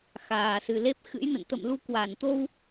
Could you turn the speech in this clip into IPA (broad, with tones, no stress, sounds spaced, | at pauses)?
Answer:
x aː˨˩ s ɨ˨˩ l e˦˥ p̚ x ɨ̰˧˥ j n ə̰˧˨ n t̪ ə̰˧˨ m l u˧ k w a˧˩ n t̪ o˧ w